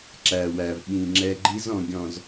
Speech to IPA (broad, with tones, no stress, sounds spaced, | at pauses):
ǁ æ˨ w æ˨ v ɓ ĩ˨ ŋ͡ǁ ɛ˦ ɡ͡ǃ i˦ z ɔ̃˨ ɡʲ ɔ̃˨ z